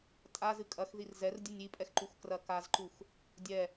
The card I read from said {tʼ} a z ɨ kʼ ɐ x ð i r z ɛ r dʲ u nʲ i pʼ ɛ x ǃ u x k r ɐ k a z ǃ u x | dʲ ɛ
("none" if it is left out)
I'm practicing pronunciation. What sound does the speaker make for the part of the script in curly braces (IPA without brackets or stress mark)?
tʼ